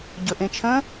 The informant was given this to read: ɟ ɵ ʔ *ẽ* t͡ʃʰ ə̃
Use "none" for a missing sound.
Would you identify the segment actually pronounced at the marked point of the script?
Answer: ẽ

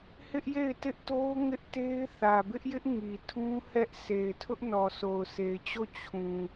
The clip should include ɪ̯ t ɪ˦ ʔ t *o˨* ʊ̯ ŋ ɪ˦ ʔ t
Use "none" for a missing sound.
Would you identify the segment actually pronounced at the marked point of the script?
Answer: o˦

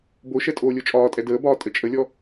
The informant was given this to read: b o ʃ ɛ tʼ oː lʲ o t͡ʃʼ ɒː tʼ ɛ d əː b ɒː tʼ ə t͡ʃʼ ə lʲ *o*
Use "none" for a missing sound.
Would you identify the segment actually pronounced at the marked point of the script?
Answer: ɔ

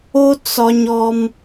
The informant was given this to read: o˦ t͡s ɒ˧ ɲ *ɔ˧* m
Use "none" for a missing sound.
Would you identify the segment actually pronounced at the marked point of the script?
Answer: ɔ˧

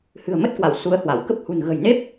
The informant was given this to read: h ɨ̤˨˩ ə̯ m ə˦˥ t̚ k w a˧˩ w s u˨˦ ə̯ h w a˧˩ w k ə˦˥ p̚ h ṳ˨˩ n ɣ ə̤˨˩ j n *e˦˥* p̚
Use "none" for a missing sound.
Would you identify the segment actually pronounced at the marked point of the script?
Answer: e˦˥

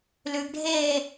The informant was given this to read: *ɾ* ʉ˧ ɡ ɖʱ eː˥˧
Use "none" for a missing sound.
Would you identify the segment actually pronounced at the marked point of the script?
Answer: l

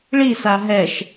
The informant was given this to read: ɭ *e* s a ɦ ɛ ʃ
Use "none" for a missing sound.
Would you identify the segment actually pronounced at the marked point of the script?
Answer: i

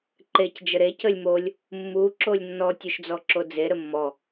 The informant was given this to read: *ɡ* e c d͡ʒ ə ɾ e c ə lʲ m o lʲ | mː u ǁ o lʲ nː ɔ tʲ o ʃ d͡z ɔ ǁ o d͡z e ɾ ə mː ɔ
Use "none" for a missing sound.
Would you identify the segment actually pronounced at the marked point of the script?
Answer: ǃ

